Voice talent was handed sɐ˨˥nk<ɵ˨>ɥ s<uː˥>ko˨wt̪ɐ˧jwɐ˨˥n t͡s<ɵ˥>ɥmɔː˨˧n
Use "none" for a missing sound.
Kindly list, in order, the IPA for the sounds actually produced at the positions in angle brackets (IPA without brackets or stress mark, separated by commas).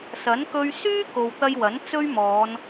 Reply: ɵ˧, yː˥, ɵ˥